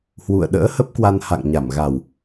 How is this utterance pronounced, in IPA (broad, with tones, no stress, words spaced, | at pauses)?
hwṵ˧˨ə̯ɗə̰ː˧˥hə˦˥p̚kwa˧n ha̰˧˨ŋɲa˧˩mɣa˨˩w